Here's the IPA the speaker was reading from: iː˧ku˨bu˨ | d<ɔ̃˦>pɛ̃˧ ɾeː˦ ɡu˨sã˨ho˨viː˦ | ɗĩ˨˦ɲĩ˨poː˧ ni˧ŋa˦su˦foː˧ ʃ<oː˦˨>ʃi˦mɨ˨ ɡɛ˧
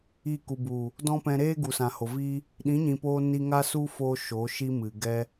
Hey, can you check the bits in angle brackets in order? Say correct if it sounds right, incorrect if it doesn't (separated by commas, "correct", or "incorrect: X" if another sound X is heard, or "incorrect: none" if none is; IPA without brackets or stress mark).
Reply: correct, incorrect: oː˨˦